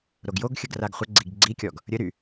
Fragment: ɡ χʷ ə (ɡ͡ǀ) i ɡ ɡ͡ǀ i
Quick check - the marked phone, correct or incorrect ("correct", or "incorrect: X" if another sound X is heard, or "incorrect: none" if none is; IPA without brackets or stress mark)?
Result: correct